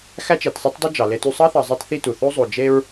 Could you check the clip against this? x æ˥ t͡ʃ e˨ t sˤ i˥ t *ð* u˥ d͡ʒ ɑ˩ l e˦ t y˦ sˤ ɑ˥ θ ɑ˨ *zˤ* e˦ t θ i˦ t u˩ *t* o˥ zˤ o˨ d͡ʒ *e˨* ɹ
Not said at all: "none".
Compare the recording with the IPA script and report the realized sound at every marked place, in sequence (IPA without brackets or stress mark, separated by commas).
dˤ, zˤ, θ, e˥